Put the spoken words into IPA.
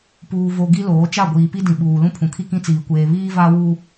p uː˨ v o˨ ɡ i˦ l oː˨˦ t͡ʃ a˦˨ ɡʷ iː˨ p i˦ d ĩ˨ ɓ uː˨ l ũ˦ pʰ ũ˨ kʰ i˦ k ĩ˦ t͡s iː˨ kʷ eː˨ β iː˦ v a˦ w u˦

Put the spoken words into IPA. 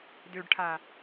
d ø ɖ ʈʰ a

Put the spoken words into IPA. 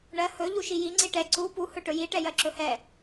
ɳ ɜ h ɵ ʎ u ʃ i j i ŋ͡ǀ i ʈ ɛ ǀ u p u h ɵ ʈ ɵ j i ʈ ɛ j ɜ ǁ ɵ h ɛ

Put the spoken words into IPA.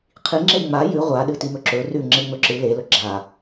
qʰ i ŋ͡ǁ e ŋ͡m a j ʉ ʁʷ a ɗ ɨ t i m ɵ ǁ ɵ r ʉ ŋ͡ǁ e ŋ͡m ɵ ǁ ɨ l e l ɵ ɡ͡ǁ a

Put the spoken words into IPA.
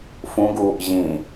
f ũ ɡ uː ʔ ʑ ĩ

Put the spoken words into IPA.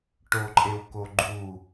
ʈ o ǃʼ e w k o ɡ͡ǃ u

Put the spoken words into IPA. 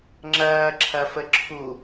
ŋ͡ǁ ɐː ǁʰ ɐ f ə ǁʰ u

